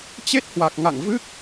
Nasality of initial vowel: oral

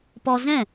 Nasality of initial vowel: oral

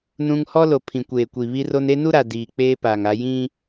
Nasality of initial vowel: nasal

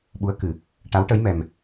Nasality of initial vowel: oral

